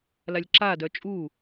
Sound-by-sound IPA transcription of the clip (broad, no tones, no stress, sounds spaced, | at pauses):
l a lʲ ǁ a d œ t͡ʃʼ u